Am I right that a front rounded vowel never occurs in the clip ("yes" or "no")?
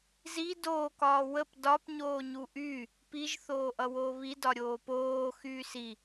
no